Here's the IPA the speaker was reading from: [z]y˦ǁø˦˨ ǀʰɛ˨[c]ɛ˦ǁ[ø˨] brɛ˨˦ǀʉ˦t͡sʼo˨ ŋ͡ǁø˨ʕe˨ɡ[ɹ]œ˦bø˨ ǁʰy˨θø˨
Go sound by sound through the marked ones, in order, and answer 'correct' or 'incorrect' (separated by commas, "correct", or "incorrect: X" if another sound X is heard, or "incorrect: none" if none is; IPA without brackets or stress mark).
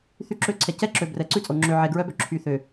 incorrect: θ, correct, correct, correct